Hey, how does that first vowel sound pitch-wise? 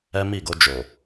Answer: high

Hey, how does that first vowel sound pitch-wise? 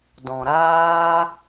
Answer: low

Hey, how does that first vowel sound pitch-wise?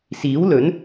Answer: rising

